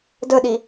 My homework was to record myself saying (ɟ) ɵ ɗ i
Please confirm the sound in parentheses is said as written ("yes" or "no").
no